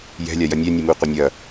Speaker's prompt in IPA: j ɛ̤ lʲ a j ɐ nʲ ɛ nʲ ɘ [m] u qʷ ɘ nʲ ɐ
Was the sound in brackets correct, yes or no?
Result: yes